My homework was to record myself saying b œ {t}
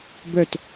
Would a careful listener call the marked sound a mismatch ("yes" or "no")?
no